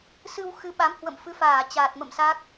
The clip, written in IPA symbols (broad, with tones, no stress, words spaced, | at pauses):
sɨ˧w xɨ˨˦ɓa˨˦m hwə̰˧˨mfɨ˨˦faː˧˩ t͡ɕaː˨˩t̚mə̰˧˨msa˦˥k̚